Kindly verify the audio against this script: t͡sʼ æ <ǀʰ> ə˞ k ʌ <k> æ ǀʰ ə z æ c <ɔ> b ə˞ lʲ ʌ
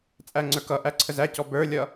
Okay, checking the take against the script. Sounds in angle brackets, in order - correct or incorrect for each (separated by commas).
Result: incorrect, incorrect, correct